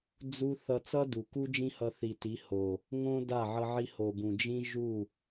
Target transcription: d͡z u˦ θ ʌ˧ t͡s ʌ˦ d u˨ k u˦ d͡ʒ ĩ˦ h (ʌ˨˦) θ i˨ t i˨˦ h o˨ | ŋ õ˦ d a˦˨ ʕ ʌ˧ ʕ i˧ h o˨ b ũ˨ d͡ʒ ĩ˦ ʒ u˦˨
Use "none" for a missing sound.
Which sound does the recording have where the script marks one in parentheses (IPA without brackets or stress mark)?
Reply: ʌ˧